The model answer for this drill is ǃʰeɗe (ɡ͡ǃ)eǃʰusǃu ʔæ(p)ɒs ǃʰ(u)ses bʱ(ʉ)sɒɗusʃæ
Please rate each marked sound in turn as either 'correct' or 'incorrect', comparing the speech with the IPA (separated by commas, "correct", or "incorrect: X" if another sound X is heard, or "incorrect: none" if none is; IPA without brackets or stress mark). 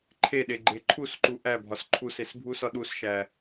correct, incorrect: bʱ, correct, incorrect: u